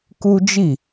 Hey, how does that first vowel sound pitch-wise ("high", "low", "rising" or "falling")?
high